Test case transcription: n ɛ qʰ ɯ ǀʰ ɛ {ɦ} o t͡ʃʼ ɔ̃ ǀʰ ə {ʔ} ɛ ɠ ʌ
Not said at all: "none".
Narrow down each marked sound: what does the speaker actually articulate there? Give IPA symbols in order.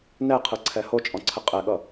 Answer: h, qʼ

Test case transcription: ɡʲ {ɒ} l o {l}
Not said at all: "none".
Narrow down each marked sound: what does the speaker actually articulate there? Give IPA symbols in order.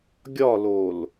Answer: ɒ, l

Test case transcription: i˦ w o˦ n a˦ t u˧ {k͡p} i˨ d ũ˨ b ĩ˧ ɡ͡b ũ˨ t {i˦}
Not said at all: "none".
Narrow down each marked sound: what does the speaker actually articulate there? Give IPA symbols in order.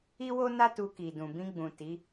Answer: k, i˨˦

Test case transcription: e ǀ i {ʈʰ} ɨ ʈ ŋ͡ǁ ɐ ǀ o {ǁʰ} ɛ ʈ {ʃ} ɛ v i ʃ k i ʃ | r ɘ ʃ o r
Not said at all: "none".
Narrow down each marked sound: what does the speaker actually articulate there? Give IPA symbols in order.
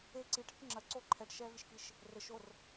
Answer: ʈʰ, ǃʰ, ʃ

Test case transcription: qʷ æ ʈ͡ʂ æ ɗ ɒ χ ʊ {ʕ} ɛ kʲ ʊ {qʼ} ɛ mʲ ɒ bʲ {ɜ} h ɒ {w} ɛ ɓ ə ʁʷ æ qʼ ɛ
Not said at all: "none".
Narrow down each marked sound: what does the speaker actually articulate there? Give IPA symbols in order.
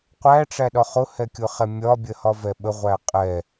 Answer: h, χ, ɜ, v

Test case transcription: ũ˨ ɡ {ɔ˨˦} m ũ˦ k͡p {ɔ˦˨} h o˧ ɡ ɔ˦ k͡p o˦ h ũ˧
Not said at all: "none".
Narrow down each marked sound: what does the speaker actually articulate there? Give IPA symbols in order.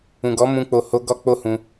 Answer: ɔ˨˦, o˦˨

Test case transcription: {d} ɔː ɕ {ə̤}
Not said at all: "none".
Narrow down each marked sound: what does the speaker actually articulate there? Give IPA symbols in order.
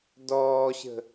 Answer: d, ə̤

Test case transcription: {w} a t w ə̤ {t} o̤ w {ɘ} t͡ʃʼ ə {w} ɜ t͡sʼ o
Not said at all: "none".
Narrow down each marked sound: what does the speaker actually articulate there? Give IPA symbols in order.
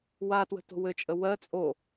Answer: w, t, ɘ, w

